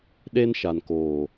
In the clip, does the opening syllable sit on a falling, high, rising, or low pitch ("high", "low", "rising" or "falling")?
high